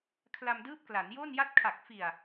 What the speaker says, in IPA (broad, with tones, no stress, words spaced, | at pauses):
kʰla˧mdɯː˦˥p̚ kla˩˦njo˥˩n ja˦˥t̚kʰa˨˩k̚fi˨˩a̯